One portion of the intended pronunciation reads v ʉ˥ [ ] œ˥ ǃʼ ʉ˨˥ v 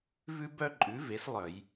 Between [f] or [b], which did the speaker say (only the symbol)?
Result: b